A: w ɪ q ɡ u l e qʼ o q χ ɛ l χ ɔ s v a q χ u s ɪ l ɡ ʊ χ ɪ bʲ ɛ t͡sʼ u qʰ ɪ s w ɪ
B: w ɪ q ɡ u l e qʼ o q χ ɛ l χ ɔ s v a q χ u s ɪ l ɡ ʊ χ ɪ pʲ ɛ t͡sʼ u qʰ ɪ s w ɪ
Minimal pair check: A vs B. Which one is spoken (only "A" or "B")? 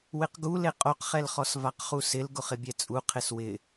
A